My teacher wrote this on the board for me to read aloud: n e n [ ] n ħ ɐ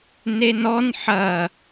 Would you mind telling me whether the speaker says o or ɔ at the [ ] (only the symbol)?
ɔ